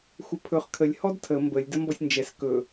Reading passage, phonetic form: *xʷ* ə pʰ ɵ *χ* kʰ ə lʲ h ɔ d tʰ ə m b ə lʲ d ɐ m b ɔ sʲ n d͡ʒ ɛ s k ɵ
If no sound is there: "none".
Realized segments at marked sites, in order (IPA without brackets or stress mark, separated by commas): xʷ, χ